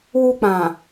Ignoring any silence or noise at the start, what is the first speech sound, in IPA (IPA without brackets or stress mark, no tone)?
w